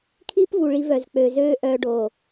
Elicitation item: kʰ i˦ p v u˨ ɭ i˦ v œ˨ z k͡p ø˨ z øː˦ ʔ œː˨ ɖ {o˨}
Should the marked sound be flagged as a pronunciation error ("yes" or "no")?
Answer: no